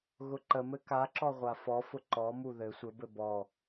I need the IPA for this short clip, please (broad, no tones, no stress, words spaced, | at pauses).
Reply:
ɣʊǃəmɘ kaǁɔ ʁʷafɔfʊ ǃɔmu ðɘ sʷɘbɘ bɔ